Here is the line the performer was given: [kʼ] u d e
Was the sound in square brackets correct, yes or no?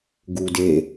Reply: no